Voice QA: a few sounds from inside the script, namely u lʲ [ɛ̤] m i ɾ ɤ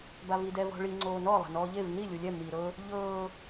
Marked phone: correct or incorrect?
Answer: incorrect